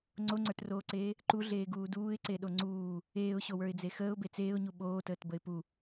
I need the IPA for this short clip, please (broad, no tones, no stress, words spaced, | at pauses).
ŋ͡ǀoŋ͡ǀə˞troːǀeː | ǃuɮeːɡuː duːɪ̯ǀeɗo ŋ͡ǀuː | eːʊ̯ɕowə˞ɪ̯d͡ze xəːʊ̯be t͡seːʊ̯ɲu ɓoːtəːtbəɪ̯ pu